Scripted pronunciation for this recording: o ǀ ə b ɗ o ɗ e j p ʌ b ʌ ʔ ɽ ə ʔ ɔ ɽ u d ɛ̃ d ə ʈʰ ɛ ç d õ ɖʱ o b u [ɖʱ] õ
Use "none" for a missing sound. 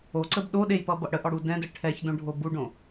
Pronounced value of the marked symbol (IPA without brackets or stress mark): ɖ